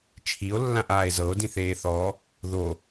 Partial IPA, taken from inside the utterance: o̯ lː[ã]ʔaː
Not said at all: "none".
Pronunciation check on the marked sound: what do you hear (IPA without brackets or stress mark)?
ã